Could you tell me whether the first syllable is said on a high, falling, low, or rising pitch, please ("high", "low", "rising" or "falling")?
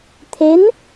rising